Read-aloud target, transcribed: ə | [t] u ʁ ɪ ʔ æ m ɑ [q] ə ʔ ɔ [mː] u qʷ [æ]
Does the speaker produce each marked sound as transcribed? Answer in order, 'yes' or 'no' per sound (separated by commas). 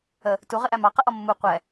yes, yes, yes, no